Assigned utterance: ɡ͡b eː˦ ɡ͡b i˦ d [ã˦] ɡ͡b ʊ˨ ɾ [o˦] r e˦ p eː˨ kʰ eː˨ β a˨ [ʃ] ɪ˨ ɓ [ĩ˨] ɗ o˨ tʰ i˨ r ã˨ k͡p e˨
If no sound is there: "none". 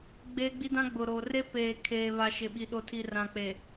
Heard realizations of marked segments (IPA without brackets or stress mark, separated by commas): ã˦, o˨, ʃ, i˨